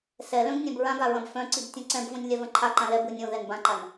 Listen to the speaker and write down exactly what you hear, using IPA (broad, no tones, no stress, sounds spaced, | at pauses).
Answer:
s ɛ l œ̃ ɡ nʲ ã b ɹ ã ɡ a ɹ ɐ̃ b f œ̃ ǀ i b tʲ ɐ̃ ǀ ɛ̃ b v õ nʲ lʲ a v ɐ̃ ǃʰ a ǃ ã l ɛ b ɯ nʲ õ ð ɛ n b ã ǃ a n